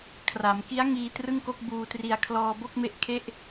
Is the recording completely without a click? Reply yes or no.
yes